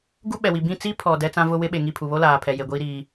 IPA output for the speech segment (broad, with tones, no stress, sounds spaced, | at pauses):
ɡ u˦ ɓ ɛ˨ w i˨ b ĩ˦˨ t͡s i˦ pʰ ɔ˨ d ɛ˦ t͡s ã˦ v ʊ˦ w ɪ˦ ɓ e˨ ŋ i˦˨ pʰ u˨ β o˦ l aː˨ pʰ ɛ˨ j e˨ ɡʷ iː˦ ɾ iː˦